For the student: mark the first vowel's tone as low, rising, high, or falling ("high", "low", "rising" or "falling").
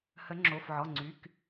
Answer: rising